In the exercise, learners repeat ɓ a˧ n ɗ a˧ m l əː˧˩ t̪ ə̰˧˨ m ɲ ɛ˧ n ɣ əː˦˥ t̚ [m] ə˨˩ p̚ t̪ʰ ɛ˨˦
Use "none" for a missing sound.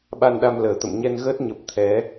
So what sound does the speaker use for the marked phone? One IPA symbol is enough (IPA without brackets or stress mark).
ɲ